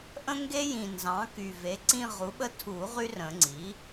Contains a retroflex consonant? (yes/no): no